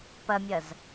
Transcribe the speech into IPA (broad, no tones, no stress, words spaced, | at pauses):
pɐmʲɐz